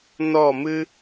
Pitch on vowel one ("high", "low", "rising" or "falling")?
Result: falling